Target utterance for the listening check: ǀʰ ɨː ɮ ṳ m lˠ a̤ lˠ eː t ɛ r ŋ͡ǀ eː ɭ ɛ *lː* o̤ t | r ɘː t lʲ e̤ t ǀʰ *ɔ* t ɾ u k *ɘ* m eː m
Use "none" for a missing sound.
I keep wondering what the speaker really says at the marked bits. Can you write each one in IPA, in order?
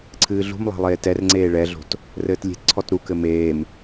ɮ, ɔ, ɘ

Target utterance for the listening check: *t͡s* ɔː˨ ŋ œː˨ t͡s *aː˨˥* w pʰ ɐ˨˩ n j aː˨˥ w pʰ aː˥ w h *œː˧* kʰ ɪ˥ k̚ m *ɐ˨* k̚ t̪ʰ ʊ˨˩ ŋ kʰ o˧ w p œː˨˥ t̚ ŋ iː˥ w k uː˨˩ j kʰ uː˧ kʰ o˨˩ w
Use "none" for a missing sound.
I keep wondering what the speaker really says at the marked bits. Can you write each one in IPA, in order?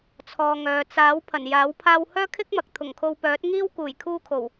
t͡sʰ, aː˨˥, œː˥, ɐ˨

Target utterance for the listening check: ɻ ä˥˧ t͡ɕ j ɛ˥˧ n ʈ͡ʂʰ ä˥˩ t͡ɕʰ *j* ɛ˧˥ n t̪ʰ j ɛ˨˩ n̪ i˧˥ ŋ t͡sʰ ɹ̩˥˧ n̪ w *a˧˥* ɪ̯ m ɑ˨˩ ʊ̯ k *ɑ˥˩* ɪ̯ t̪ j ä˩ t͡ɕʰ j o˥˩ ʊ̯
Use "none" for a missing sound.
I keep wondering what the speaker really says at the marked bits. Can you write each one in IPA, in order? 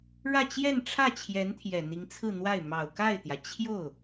j, a˥˩, a˥˩

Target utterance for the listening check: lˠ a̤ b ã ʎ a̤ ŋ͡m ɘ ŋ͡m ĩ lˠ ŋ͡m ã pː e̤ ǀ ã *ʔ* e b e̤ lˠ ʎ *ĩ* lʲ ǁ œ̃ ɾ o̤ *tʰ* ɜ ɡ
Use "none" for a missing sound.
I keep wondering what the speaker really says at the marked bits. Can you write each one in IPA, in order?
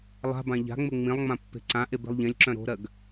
ʔ, ẽ, ɾ

